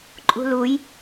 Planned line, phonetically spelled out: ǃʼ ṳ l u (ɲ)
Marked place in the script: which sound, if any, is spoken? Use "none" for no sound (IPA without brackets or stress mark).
j